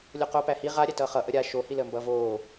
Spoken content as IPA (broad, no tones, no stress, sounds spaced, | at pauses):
lʲ o q oː p æ h i ʁ a ɾʲ æ t ʌː χ ʌ ʔ ə ɾʲ a ʃ o h i l əː m b ʌː v oː